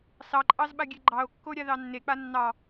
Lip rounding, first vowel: unrounded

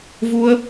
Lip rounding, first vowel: rounded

